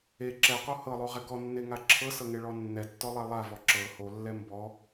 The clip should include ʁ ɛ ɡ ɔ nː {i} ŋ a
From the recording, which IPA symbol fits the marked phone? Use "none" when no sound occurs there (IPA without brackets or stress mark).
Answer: e